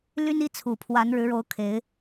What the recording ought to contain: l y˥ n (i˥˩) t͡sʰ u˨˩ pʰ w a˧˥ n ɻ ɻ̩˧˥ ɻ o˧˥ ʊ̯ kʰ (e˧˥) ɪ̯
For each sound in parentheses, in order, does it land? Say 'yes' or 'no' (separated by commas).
no, yes